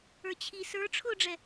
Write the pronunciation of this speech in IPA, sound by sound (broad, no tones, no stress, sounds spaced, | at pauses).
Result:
ə˞ t͡ɕʰ i s ə˞ ʈ͡ʂʰ ʊ ɖ͡ʐ ɛ